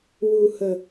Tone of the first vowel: low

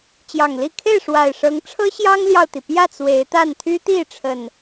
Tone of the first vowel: low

